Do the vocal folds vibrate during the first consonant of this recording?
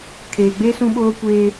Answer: no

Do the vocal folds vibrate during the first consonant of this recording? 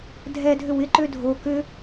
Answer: yes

